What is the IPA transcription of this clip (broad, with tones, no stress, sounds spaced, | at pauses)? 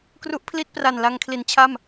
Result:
k r u˦˥ ʔ pʰ l i˥˩ t̚ p r a˨˩ n l a˧ ŋ kʰ l i˩˦ n t͡ɕʰ a˥˩ m